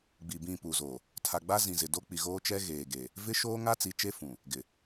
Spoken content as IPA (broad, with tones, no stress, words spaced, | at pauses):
ɡ͡bi˨bĩ˦˨pu˨zo˨ | tʰa˨ɡ͡ba˦ zĩ˨zɪ˨ do˦ k͡pi˨ ɣoː˦t͡ʃɛ˦ ɣeː˨ɡe˨ | vɪ˦ʃoː˦ŋa˦ t͡si˨˦t͡ʃe˦ fũ˨ | ɡɪ˨